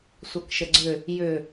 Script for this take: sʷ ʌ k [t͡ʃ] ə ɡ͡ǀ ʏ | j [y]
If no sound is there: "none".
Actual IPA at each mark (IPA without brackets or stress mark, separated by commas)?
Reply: ʃ, ʏ